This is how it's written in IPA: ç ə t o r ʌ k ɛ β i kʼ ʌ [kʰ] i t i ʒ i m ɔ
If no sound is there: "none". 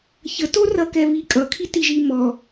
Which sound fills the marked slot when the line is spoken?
kʰ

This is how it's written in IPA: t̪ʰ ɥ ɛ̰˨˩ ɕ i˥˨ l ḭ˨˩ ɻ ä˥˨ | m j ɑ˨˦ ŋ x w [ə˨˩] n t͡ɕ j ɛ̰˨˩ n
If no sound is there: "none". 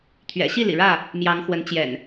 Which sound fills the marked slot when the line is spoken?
ə˨˦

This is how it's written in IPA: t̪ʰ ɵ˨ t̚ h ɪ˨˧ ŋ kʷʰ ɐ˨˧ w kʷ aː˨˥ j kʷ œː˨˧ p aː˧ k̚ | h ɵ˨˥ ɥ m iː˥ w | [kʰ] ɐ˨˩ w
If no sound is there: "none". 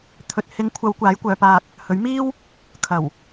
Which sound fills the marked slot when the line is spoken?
kʰ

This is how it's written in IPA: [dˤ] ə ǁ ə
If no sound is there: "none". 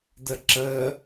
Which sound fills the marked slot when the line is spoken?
d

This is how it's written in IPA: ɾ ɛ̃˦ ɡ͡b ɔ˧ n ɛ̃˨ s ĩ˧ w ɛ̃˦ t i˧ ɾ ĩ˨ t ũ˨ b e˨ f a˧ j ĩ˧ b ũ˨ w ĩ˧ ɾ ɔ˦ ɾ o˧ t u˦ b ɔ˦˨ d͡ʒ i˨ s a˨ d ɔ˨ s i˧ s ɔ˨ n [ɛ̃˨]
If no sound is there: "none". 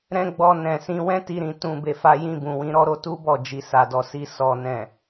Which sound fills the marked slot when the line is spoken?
ɛ̃˨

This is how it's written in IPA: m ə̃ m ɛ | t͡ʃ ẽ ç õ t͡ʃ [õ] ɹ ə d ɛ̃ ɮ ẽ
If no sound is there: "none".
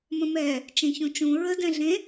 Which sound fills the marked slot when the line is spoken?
ũ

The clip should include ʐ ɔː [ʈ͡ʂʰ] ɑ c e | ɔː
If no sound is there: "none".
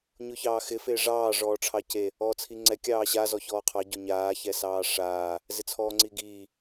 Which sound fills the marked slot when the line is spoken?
ʈ͡ʂʰ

